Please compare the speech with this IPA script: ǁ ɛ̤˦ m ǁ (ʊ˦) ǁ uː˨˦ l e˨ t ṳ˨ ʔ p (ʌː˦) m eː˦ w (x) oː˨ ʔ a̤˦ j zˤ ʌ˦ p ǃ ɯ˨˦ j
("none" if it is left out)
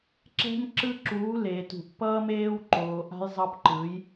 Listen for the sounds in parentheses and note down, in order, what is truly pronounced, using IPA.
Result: ɯ˦, ʌː˦, ǃ

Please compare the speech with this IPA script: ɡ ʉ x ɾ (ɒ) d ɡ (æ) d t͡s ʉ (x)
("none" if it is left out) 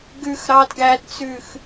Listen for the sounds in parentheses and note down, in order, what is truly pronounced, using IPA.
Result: ɑ, æ, x

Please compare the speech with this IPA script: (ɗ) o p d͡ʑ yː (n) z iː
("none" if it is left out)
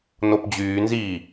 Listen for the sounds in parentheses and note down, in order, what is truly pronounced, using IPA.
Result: n, n

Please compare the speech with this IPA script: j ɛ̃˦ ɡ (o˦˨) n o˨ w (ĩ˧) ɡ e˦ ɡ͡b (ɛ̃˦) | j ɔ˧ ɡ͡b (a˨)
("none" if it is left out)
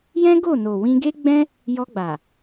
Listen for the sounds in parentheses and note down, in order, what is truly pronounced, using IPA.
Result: o˦˨, ĩ˧, ɛ̃˦, a˨

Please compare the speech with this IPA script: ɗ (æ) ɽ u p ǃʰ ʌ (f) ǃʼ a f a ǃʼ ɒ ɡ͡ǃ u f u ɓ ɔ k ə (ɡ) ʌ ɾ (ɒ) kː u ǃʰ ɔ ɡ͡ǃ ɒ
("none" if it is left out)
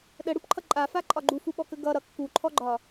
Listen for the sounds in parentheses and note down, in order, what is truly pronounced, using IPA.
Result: ə, none, ɡ, ʌ

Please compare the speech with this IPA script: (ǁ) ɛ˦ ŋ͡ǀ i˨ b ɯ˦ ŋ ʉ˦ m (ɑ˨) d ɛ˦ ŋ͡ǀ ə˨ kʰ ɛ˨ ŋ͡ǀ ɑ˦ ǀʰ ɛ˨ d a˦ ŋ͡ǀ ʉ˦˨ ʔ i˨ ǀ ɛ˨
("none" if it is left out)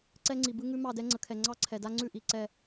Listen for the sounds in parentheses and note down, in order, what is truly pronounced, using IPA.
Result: ǀ, ɑ˦˨

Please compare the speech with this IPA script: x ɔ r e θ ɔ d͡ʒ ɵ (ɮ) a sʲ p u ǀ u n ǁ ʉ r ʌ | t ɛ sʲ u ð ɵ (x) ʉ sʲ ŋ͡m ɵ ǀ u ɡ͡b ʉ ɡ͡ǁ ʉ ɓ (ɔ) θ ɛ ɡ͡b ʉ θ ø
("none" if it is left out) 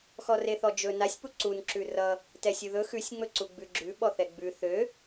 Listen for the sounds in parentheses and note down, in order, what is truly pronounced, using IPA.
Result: n, x, ɔ

